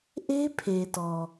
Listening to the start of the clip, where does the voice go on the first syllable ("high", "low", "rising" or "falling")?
high